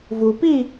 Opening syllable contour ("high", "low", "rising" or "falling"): low